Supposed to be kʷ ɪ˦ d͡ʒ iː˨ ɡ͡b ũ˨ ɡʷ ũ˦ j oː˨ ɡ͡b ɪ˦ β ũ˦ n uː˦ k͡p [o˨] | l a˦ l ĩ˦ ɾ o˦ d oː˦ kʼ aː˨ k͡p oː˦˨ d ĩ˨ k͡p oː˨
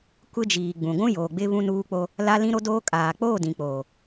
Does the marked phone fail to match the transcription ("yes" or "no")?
yes